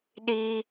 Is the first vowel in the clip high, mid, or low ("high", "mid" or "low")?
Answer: high